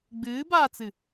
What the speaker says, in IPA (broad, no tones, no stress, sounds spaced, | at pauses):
ɡ͡b ɨː b aː t͡s ɨ